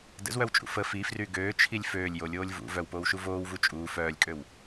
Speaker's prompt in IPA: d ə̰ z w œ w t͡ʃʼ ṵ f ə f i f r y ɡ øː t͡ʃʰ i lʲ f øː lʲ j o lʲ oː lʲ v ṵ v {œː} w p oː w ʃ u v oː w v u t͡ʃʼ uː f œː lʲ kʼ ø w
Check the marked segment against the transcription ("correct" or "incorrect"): incorrect